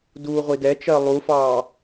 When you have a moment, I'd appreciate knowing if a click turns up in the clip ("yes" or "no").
no